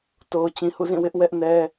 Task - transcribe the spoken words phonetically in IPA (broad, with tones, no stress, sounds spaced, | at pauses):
t o˨ ʊ̯ t͡ɕ ĩ˨ h ṵ˦˨ z ĩ˦˨ w ɪ˦ ʔ w ɛ˦ ʔ n ɛ˦